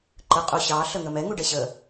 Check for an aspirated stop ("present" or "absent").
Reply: absent